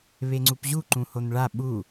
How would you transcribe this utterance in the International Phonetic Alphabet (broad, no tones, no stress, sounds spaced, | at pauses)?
β e ŋ͡ǀ u p ʑ u ǃ ũ h o n ɭ a ɓ u